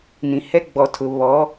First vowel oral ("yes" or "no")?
no